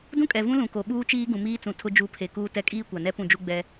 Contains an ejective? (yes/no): yes